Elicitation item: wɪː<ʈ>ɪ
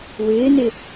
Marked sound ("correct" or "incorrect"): incorrect